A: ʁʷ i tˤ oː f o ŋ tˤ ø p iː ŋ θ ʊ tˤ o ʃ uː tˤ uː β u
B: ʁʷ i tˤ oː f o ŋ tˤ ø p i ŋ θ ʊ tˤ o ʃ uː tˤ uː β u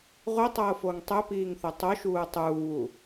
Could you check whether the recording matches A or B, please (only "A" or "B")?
A